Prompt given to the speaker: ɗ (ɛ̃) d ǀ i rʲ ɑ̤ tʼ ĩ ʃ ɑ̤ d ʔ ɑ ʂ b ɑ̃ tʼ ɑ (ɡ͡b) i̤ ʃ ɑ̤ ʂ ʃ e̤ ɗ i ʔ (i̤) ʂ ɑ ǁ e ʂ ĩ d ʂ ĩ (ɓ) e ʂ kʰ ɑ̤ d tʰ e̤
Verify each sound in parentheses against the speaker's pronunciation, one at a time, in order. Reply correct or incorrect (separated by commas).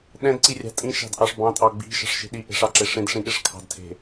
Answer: correct, correct, incorrect, incorrect